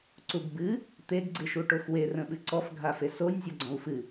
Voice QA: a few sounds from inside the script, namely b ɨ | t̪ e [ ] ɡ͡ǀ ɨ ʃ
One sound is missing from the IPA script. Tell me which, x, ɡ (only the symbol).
ɡ